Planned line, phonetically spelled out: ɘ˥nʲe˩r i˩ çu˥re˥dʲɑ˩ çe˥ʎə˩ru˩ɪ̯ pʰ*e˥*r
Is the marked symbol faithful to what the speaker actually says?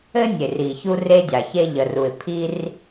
no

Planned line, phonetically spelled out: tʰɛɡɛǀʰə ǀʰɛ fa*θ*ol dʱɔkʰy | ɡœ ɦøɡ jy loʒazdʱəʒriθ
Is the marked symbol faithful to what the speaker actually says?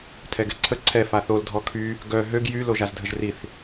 yes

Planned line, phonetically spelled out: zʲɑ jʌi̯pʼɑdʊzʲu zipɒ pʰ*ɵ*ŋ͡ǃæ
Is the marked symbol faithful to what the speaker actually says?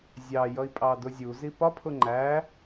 no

